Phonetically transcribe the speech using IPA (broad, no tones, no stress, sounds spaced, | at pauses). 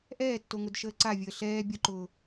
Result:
ʔ ɛː tː o ŋ ʊ d ʃ əː ǀ a vʲ əː ɬ ɛː bʲ ʊ ǃ ʊː